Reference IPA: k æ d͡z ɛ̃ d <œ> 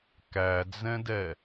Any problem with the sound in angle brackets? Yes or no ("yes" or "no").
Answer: yes